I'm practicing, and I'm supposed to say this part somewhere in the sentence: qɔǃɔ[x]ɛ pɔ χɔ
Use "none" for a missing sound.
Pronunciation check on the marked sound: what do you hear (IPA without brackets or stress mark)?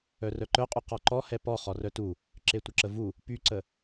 h